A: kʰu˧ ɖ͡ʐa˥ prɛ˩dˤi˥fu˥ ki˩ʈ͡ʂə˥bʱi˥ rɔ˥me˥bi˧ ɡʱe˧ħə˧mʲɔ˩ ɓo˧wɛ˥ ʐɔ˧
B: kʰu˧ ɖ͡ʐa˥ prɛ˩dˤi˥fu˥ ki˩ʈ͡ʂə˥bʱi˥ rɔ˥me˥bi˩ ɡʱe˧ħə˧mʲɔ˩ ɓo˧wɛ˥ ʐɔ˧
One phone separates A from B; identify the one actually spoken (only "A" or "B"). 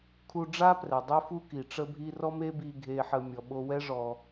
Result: A